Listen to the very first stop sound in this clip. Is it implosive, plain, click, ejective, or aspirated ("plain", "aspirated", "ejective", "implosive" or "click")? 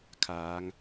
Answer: aspirated